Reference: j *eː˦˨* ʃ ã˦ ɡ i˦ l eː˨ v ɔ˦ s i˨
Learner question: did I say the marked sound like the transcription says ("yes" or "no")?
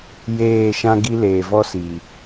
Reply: yes